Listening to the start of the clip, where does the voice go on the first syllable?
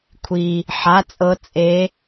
low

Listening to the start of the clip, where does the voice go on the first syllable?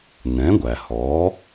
rising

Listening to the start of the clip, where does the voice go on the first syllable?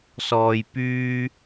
low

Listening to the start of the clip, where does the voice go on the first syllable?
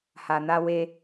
low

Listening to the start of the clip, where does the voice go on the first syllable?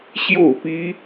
falling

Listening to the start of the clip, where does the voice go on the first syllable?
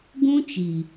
high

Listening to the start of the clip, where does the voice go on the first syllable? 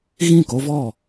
falling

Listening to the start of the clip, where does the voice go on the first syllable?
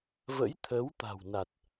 rising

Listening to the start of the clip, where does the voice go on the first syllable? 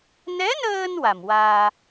rising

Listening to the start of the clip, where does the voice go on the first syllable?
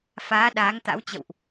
rising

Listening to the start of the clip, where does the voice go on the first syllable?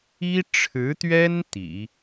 high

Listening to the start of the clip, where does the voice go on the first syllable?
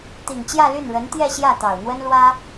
low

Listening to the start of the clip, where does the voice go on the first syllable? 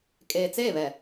low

